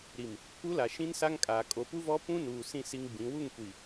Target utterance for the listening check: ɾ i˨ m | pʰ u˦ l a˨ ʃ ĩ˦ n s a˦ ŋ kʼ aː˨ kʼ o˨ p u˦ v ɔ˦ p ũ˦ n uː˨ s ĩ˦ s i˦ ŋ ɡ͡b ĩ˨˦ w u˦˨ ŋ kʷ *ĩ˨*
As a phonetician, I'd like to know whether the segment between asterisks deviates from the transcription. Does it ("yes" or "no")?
yes